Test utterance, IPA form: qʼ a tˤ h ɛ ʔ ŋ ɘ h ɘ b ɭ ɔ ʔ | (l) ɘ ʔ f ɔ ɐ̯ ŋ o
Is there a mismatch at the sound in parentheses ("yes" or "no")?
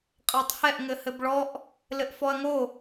no